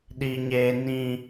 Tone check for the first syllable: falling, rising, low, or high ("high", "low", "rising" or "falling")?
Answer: high